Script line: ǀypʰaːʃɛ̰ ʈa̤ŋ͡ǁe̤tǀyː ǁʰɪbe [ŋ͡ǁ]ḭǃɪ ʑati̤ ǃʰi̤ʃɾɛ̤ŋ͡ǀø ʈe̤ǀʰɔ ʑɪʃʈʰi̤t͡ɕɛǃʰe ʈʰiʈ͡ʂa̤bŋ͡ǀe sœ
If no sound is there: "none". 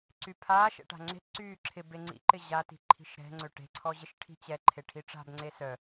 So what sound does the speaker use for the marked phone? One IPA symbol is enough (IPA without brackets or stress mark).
ŋ͡ǀ